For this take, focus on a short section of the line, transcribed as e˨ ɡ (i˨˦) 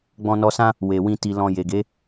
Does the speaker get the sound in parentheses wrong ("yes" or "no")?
yes